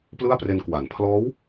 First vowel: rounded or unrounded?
unrounded